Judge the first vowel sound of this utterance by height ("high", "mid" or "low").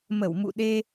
mid